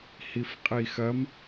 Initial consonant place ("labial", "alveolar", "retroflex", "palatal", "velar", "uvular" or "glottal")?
glottal